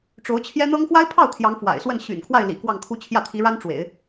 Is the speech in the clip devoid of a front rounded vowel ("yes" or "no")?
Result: no